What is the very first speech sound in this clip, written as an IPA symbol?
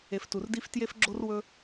e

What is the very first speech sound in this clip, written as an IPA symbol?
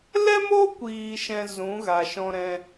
l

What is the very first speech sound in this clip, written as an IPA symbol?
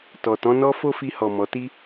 t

